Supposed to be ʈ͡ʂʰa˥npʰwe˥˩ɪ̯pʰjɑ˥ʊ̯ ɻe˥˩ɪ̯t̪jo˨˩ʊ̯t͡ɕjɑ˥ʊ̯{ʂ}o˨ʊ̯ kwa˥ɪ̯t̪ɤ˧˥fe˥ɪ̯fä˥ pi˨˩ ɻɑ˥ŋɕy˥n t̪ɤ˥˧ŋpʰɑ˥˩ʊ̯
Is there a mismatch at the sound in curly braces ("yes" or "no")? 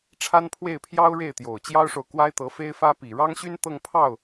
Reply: no